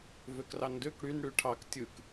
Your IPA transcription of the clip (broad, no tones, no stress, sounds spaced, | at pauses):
v ø k r ɑ n d ø k ɽ y n ɽ y ʈʰ ɑ k tʲ ɯ k